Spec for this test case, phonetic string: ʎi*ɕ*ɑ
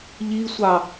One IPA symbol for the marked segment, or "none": sʷ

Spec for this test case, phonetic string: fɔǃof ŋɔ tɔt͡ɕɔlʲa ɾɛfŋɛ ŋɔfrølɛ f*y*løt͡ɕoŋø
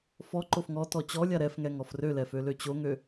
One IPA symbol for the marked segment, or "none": ø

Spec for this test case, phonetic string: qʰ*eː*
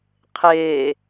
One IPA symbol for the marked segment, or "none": eː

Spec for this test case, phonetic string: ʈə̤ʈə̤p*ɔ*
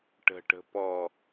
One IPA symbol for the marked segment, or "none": ɔ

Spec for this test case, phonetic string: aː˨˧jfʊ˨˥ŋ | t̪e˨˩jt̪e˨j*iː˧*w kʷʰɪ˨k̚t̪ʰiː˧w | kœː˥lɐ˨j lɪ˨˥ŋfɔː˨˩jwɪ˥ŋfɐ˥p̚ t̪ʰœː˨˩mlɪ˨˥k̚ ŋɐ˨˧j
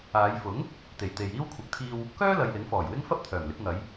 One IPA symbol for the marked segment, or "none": iː˥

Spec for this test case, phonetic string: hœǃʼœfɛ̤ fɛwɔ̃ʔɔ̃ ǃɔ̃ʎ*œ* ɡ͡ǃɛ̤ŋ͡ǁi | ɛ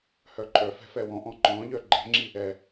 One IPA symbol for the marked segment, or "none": œ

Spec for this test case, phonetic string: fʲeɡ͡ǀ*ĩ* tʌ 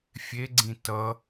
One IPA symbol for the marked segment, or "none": ĩ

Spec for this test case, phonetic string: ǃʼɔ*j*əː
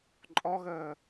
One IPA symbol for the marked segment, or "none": ɣ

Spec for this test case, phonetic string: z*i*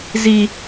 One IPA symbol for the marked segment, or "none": i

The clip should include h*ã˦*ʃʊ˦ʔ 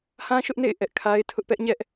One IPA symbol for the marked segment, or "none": ã˦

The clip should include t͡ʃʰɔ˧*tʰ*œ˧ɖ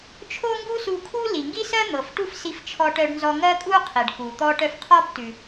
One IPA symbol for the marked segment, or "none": ʈ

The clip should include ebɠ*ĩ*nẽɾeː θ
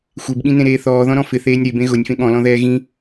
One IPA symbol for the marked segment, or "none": ĩ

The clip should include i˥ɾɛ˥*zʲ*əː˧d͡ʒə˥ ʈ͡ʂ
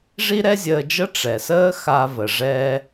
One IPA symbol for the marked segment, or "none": zʲ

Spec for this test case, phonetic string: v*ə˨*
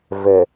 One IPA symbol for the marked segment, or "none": ə˨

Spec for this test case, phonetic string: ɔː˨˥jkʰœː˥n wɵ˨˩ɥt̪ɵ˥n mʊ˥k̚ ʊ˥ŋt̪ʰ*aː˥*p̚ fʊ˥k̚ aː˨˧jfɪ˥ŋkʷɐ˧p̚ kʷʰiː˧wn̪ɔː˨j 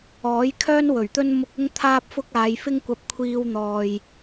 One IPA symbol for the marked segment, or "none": aː˥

